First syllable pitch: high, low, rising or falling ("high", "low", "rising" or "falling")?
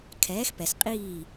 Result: rising